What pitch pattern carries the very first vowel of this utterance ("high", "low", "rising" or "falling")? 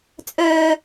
low